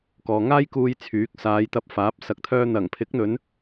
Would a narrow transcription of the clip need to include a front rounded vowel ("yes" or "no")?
yes